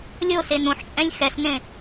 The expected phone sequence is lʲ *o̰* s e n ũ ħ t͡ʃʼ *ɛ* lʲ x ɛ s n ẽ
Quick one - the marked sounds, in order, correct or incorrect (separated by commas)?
incorrect, incorrect